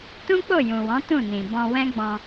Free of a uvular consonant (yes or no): yes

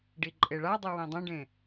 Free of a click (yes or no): no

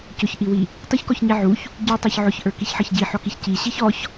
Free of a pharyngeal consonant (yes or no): no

